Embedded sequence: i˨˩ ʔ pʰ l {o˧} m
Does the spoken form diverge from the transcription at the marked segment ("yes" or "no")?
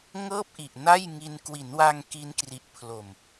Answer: yes